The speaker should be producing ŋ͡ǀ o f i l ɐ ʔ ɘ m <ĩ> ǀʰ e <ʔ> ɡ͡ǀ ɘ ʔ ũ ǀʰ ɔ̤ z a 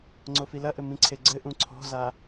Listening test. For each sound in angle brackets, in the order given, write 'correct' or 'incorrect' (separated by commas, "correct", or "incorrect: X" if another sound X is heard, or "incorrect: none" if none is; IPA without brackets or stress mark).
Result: correct, incorrect: none